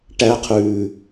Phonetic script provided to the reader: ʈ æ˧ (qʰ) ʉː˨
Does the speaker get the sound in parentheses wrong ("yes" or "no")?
no